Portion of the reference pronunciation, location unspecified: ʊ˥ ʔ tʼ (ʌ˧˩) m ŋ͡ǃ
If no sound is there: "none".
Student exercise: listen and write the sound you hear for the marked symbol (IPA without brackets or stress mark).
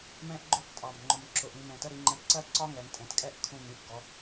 ɑ˧˩